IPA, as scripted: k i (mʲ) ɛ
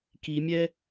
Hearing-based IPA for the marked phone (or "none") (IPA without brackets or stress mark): mʲ